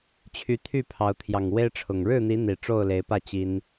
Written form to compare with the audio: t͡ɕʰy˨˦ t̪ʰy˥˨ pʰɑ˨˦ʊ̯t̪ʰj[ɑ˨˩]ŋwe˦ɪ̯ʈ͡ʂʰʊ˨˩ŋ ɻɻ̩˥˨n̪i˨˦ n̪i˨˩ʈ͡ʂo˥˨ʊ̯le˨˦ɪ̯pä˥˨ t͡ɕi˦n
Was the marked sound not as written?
no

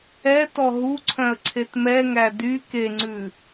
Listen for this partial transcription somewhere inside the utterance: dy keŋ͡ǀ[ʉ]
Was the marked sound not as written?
no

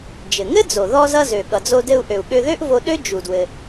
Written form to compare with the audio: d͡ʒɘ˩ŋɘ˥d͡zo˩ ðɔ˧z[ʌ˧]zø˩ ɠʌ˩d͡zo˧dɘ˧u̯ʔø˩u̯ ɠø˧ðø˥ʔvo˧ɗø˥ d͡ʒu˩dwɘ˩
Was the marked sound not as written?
no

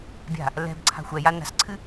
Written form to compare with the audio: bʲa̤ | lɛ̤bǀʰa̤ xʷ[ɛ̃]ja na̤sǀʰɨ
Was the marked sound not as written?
yes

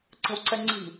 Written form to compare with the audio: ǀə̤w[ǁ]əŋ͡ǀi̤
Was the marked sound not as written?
yes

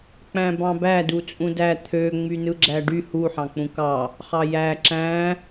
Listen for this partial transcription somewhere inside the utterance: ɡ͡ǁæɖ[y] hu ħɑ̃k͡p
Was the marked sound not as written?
no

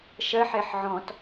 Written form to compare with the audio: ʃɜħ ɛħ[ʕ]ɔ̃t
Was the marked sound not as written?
no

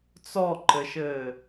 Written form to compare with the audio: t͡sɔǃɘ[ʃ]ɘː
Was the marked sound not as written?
no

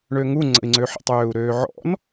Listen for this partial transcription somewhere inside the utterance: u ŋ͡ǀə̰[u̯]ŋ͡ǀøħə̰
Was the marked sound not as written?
yes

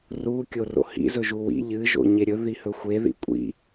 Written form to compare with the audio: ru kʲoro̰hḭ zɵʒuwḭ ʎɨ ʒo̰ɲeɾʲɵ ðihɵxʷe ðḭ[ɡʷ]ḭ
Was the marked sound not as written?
yes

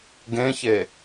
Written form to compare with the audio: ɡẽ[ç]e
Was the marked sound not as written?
no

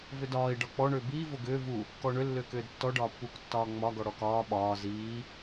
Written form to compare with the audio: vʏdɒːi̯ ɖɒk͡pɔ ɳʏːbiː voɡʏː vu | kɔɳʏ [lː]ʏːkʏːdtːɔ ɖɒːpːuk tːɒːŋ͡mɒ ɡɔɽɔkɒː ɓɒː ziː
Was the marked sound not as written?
no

